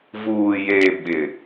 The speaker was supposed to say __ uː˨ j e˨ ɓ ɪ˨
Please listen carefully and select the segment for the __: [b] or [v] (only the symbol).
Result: v